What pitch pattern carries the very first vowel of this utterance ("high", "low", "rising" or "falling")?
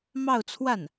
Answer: falling